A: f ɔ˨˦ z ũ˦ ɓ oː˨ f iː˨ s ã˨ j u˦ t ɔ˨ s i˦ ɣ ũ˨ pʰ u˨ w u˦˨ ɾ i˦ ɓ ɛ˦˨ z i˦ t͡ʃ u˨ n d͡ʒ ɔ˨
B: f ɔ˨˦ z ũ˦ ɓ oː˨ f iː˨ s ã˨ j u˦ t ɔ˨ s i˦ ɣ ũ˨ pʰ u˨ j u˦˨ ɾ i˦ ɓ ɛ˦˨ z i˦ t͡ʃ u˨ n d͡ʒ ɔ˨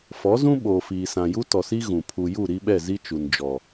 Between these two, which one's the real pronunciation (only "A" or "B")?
B